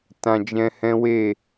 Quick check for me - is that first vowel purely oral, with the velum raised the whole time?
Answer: no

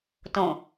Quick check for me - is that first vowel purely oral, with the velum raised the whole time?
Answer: no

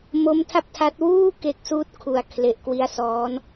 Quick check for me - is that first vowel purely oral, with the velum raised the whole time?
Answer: yes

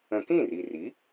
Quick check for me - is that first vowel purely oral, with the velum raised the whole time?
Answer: no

